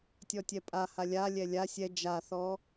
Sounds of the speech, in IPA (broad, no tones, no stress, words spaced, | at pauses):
tʲɔtʲɛpʼa halʲa lʲɛlʲa sʲɛ d͡ʒaθɔ